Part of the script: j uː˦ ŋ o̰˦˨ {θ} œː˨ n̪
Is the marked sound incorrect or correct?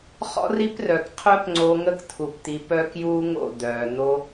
incorrect